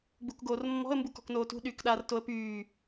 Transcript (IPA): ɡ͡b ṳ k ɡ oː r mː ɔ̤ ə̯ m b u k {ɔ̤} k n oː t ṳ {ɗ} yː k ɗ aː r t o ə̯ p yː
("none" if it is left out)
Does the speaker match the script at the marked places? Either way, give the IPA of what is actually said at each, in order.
ɔ̤, ɗ

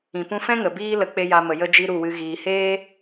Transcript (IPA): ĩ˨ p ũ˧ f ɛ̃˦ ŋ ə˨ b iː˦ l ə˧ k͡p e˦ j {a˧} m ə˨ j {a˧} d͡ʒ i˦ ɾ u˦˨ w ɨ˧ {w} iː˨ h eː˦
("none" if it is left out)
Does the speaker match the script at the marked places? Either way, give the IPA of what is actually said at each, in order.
a˧, ə˧, ɣ

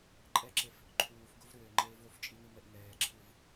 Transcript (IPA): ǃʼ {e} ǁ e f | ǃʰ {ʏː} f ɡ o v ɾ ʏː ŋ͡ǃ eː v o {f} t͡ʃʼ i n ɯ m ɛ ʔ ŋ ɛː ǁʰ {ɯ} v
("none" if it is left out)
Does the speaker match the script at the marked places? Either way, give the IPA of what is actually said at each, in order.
ɛ, uː, f, ɯ

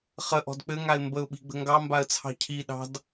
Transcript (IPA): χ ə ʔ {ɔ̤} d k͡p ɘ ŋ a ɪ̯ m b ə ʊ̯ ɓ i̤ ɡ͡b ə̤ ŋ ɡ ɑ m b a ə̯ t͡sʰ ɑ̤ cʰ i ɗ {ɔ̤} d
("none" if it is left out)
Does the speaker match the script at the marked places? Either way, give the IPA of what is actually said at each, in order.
ɔ̤, ɑ̤

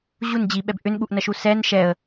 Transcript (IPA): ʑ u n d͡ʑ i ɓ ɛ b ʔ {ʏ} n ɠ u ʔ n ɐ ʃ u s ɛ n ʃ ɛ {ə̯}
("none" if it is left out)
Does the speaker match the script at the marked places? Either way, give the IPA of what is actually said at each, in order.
ʏ, ə̯

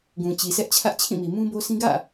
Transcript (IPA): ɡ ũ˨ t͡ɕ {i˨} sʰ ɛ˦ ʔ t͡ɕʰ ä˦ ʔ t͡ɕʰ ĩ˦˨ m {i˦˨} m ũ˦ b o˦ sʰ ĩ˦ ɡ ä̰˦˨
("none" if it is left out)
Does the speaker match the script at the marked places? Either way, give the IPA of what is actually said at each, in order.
i˨, i˨

